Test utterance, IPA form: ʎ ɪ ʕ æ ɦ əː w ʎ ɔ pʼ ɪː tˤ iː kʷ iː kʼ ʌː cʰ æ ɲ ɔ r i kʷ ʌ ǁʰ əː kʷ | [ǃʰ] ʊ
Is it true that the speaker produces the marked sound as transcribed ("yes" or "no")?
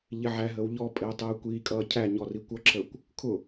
no